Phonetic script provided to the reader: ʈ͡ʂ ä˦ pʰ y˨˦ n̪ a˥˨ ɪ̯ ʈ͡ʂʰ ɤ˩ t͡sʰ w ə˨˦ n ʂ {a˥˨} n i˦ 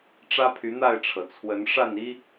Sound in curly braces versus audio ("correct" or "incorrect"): correct